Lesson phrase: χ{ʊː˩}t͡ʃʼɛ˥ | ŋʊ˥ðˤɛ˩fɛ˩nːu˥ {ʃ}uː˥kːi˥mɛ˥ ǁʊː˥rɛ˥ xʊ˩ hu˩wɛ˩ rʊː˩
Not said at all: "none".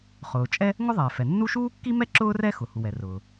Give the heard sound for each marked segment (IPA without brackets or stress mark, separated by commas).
ʊː˩, ʃ